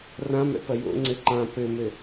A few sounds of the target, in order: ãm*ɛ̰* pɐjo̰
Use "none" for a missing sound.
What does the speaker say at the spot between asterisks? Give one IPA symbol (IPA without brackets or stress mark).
ɛ̰